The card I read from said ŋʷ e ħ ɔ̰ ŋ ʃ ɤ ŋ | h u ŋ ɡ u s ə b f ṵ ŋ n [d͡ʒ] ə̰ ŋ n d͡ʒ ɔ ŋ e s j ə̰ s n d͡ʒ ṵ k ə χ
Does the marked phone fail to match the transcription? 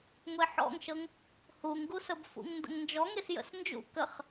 yes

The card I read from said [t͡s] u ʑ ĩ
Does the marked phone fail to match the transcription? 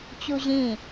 yes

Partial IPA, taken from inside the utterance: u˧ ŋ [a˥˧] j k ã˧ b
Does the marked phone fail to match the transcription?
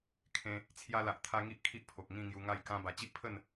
no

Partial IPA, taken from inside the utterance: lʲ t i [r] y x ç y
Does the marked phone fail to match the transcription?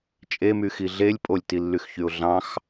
yes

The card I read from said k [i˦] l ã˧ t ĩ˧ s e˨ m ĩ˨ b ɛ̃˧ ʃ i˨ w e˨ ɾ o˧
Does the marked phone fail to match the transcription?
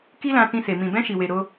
no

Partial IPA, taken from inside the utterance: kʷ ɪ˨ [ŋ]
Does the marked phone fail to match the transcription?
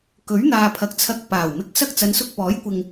no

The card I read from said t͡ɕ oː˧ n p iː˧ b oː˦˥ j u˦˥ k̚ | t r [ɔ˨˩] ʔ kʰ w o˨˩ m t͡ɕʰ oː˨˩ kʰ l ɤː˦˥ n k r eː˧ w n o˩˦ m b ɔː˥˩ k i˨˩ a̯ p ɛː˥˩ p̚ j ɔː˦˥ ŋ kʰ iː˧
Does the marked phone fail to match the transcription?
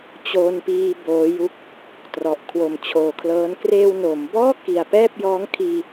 no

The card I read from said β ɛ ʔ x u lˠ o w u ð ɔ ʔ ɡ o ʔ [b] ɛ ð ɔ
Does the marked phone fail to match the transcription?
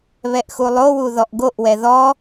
yes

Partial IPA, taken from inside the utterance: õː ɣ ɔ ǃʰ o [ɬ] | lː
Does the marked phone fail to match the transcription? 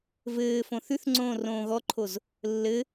yes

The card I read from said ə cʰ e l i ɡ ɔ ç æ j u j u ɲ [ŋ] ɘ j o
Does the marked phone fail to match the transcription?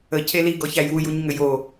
no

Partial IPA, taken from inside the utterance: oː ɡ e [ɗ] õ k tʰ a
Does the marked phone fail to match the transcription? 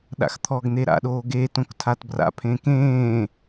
yes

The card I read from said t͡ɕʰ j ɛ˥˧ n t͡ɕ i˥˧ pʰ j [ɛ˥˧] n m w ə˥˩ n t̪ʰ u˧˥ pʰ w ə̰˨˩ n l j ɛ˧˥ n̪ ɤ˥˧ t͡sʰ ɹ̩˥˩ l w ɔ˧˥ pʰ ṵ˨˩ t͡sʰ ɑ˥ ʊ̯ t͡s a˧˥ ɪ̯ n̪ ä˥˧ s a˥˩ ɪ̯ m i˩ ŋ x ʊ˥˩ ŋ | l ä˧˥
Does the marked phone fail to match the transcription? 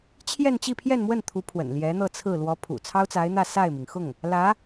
no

